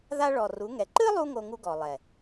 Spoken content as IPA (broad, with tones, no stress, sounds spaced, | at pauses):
ð a˦ ɭ ɔ˨ r u˨˦ ŋ ɛ˨ ǃ ɨ˦ lˠ u˧ ŋ o˦ ŋ u˦ ɡ ɔ˨ lˠ ɛ˨